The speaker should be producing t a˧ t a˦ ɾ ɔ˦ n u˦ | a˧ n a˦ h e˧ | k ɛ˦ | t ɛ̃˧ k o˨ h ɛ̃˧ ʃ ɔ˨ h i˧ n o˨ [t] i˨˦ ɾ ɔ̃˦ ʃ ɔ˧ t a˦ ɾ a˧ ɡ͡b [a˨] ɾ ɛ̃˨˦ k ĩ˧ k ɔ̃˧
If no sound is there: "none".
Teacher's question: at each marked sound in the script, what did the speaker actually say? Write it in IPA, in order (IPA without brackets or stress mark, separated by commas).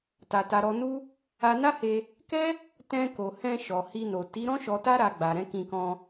t, a˨